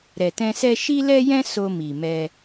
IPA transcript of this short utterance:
ɾɛ˨tɛ̃˧sɛ˦ ʃi˦lɛ˦jɛ̃˦ so˧mi˨ mɛ˧

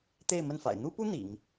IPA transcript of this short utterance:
t̪e˥˧ɪ̯ mə˥˩nfa̰˨˩ɪ̯ n̪u˥pu˥ n̪ḭ˨˩˦ŋ

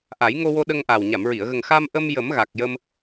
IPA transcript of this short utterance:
ʔa˨˩˦jŋo˧wo˧ ɗə˧ŋʔa˨˩w ɲa˨˩˨mɹi˨˩˨ə̯ɣə˨˩ŋ xa˧mʔə˧m jə˨˩˦mɣa˨˩k̚jə˧m

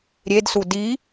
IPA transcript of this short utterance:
ɾʲedsu di

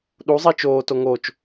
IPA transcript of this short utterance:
ɗuzˤi t͡ʃoːto ŋot͡ʃ

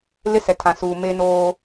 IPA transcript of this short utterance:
lɪ˦sɛ˨ tʰã˨suː˨ me˦noː˦

